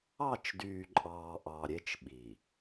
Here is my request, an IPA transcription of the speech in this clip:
ɑ˦˨ t͡ʃ d yː˨ ǃʼ ɑː˨ ʔ ɑ˨ ɾʲ e˦ t͡ʃ ɓ i˨

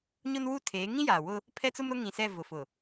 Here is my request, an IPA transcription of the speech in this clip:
ɲ ʊ˦ n w u˦ tʰ eː˨˦ ŋ ĩ˦ j aː˨ w ʊ˦ | pʰ ɛ˦ t͡s ʊ˦ m ɾ ʊ˦ ŋ ĩ˨ s ɛ˦˨ v ʊ˨ f ʊ˨

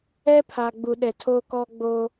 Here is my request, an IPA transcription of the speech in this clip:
ɛ˦ pʰ a˨ ɡ͡b u˨ ɗ ɛ˨ tʰ o˦ k ɔ˦ ɡ͡b o˦

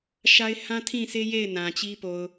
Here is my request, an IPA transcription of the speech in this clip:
ʃ a˦ ɪ̯ h ã˦ tʰ ĩ˦˨ sʰ e˦ j e˦˨ ɪ̯ n ã˨ t͡ɕ i˦ p o˨ ʊ̯

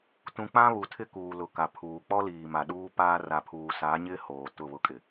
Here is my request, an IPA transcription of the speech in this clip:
t ũ˨ k͡p ã˦ β u˨ tʰ ɪ˦ k uː˨ l ʊ˨ k a˨ pʰ uː˨ k͡p ɔ˦ l iː˨ m a˨ ɗ uː˦ p aː˦ r a˨ pʰ uː˨ s a˨˦ ɲ ɪ˦ h oː˨ t ʊ˦˨ β ʊ˦ kʼ ɪ˨

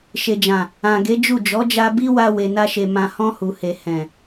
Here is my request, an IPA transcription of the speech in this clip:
ʃ e˨ d͡ʒ ã˨ | ã˨ ɡ e˨˦ d͡ʒ u˦˨ d͡ʒ ɔ˨˦ d͡ʒ a˧ b i˦ w a˧ w e˨ n a˧ ʃ e˨ m ã˨ h ɔ̃˧ h u˨ h e˨ h ɛ̃˨

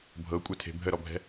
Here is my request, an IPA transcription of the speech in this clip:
bʱ ɤ kʷʼ œ tʰ e̤ bʱ ə ɾ ɔ bʱ ɛ̤

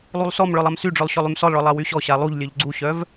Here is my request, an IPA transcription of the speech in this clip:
lˠ u lˠ s ɔ m ɭ œ lˠ a m s y ɖ͡ʐ œ lˠ ɕ ɔ lˠ y m s ɔ lˠ ɭ ɔ lˠ a w y ɕ ɔ ɕ a lˠ u ʎ lʲ œ ʎ ɡ͡ǀ u ɕ œ v

